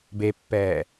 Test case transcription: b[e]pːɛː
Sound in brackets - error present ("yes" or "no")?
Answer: no